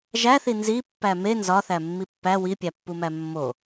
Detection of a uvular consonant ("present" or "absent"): absent